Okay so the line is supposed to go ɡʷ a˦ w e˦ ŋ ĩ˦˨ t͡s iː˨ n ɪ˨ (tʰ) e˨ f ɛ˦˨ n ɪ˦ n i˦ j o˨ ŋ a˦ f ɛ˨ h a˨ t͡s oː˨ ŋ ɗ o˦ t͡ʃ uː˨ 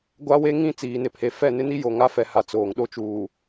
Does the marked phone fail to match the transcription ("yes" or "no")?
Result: yes